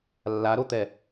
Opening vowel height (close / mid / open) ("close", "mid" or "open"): open